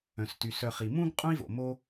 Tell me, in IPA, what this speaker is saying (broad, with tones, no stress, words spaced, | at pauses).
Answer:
œ̃˨sty˨s œ˨ χi˨ mũ˥ɡ qʼũ˥i̯vo̰˨mo˦